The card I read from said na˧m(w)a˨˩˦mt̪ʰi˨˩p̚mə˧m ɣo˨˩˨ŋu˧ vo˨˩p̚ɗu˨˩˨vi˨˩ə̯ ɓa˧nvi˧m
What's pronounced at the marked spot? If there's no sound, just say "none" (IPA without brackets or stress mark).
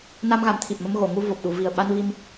ɣ